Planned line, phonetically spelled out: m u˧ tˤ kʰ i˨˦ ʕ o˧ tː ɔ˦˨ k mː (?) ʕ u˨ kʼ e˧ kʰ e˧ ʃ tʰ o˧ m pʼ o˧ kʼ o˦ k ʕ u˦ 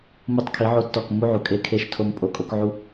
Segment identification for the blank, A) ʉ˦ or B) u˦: B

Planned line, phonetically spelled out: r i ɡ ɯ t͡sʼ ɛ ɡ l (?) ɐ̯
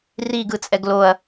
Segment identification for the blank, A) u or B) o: B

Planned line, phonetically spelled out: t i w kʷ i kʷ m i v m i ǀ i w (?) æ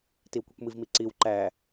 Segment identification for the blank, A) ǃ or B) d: A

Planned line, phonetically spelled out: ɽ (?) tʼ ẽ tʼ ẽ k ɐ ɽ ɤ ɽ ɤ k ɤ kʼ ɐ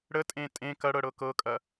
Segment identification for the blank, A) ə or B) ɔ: A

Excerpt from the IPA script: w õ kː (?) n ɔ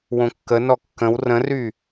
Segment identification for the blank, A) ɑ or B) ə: B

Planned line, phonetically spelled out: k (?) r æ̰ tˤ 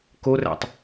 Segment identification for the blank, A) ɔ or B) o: B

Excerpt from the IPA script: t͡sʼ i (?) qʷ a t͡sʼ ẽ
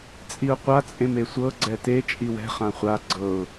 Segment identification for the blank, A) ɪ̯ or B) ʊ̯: B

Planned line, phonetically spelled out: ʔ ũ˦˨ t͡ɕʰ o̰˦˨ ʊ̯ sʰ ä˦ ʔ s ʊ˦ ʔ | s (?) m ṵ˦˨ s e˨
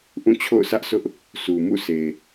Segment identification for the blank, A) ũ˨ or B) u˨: B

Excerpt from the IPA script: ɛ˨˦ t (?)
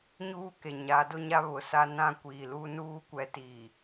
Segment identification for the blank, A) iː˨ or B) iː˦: A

